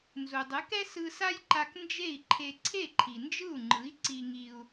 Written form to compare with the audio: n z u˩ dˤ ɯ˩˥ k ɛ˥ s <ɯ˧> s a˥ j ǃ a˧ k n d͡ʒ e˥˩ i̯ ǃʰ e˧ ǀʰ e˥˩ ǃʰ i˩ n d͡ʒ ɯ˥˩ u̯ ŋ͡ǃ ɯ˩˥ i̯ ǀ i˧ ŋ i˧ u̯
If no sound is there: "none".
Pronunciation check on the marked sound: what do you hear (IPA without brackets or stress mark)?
ɯ˧